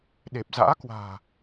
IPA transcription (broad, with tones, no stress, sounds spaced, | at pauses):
ɗ e˨˩ p̚ z a̰ː˧˥ k w a̤ː˨˩